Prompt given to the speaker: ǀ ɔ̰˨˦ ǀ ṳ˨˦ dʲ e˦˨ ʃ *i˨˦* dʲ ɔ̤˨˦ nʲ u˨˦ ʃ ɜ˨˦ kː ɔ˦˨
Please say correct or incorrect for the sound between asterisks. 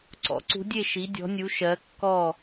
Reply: correct